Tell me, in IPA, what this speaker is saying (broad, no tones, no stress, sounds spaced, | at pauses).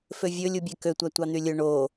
f ø vʲ ɵ lʲ u bʲ ɛ k ø tʷ æ tʷ ɑ n̪ y lʲ ɵ ɳ o